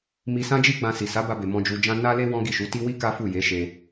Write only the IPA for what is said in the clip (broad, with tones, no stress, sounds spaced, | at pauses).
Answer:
m i˧ s ã˦ d͡ʒ i˦ ɡ͡b ã˧ s i˨ s a˨˦ b a˧ b e˨ m ɔ̃˧ d͡ʒ u˧ d͡ʒ ã˦ n a˦ l e˦ w ɔ̃˦ ɡ i˦˨ ʃ u˨˦ t i˦ w i˦ k a˦ f u˦˨ j e˨˦ ʃ e˧